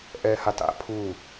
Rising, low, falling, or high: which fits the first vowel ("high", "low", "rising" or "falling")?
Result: low